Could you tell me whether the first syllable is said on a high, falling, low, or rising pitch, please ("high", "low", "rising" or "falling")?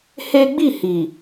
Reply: high